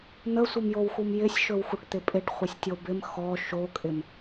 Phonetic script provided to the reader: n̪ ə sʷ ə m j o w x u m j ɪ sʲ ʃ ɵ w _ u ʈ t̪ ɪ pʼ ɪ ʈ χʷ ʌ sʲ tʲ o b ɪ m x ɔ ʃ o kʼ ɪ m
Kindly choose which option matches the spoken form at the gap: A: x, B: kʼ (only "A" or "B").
A